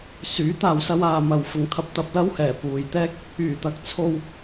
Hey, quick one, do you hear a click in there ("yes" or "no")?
no